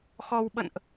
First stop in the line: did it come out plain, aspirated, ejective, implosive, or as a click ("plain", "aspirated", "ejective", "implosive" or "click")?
implosive